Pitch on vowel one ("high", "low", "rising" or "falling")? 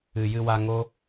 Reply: low